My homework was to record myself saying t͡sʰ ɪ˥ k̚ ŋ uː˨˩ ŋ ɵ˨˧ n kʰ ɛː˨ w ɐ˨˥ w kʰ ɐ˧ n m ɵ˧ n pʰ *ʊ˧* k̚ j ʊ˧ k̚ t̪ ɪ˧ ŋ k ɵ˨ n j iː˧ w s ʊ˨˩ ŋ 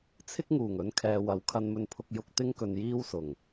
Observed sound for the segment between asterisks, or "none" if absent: ʊ˧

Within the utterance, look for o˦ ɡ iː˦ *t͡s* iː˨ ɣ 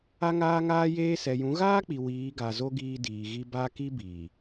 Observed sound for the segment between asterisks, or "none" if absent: d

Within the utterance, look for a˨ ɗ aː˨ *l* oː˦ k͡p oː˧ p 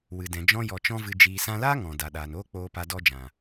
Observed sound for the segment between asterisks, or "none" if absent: n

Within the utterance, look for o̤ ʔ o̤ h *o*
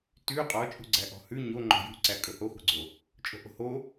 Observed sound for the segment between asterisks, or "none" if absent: o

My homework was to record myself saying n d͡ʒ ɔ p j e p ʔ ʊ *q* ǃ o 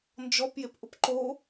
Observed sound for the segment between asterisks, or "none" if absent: p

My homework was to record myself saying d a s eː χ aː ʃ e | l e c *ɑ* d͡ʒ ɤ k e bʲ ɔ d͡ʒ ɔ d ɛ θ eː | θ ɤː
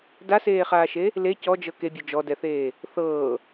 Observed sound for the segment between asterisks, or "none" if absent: ɔ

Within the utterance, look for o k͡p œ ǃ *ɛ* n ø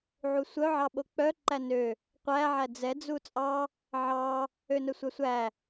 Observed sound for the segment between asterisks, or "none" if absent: æ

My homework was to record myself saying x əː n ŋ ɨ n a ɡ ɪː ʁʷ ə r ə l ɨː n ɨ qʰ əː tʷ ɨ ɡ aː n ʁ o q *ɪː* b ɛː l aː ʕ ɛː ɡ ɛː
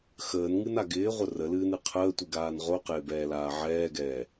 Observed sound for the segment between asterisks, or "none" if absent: ɪː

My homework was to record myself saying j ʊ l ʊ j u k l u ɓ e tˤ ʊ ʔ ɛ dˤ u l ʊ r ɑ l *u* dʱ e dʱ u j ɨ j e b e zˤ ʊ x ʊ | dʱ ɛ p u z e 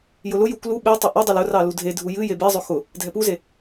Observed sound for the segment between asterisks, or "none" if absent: u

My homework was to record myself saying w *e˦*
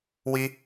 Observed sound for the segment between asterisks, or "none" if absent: i˦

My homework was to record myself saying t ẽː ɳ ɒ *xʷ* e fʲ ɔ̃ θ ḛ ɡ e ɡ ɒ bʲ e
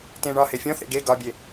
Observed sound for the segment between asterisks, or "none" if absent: h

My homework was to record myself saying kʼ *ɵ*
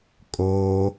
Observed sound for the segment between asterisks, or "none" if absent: o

